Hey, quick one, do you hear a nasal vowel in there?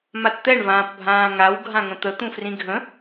yes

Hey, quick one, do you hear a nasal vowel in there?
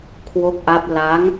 no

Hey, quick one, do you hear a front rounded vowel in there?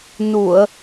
no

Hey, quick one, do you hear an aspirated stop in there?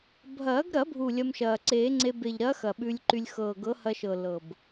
no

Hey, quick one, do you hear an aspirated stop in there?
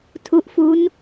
yes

